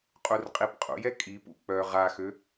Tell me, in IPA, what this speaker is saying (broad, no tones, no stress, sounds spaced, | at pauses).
qʼ u r qʼ i p qʼ ṵ j ɛ kʼ i p ṵ k͡p œ ʁ a x ø